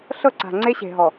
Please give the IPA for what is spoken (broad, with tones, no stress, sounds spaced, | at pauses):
ɬ ɤ˦˨ ǀ a̤˨ ŋ͡ǀ e˦ ɕ e̤˨ ɦ ɔ˨